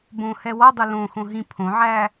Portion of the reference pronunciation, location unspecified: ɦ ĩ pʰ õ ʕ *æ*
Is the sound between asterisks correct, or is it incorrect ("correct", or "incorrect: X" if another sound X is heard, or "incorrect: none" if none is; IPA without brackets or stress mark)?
correct